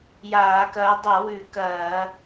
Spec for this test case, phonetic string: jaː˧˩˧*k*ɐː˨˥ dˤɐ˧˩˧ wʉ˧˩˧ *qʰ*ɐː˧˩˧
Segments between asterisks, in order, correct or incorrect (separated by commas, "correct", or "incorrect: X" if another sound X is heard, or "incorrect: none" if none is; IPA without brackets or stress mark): correct, incorrect: k